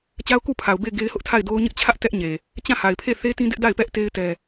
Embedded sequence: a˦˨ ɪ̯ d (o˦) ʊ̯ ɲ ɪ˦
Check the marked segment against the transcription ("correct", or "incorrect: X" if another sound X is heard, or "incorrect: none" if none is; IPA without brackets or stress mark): correct